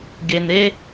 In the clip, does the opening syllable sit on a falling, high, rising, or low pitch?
low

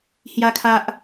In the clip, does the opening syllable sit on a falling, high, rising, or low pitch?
high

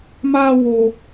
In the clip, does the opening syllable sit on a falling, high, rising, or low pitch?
high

